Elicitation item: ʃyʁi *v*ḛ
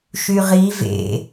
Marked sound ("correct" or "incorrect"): correct